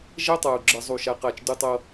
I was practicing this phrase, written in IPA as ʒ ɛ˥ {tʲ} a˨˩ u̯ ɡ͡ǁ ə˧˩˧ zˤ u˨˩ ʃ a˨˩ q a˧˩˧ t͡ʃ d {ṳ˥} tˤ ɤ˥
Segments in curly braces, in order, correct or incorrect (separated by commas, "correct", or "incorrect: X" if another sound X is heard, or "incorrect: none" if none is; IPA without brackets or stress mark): incorrect: tˤ, incorrect: u˥